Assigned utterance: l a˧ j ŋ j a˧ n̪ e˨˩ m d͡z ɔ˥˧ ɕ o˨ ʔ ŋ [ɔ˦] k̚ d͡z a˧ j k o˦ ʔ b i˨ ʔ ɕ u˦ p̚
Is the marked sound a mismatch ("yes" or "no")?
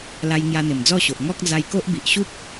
no